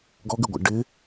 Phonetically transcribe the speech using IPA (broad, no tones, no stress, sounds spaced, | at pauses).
ɡ ɔ ɡ ɪ ɡʷ ɑ̰ ɖ ɪ